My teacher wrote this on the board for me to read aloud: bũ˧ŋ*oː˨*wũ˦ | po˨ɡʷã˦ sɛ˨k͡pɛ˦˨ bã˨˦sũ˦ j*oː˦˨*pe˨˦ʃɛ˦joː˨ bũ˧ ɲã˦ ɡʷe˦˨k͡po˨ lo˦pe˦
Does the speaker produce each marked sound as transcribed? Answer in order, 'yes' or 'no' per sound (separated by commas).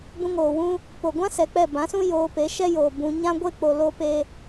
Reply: yes, no